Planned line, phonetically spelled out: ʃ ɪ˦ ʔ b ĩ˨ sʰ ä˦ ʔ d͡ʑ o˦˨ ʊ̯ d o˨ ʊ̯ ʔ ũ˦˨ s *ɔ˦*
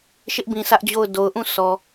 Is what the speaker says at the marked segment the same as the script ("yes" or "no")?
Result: no